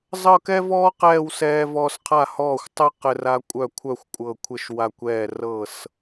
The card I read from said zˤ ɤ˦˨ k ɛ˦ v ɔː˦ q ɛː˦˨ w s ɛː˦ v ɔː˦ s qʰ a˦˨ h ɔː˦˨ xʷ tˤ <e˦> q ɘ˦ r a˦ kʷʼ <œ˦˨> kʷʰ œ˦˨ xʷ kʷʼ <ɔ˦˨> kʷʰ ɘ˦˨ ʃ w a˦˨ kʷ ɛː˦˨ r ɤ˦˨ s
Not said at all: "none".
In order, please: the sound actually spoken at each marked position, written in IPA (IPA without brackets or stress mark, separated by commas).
ɘ˦, œ˦˨, ɤ˦˨